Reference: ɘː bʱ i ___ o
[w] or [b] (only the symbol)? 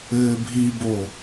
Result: b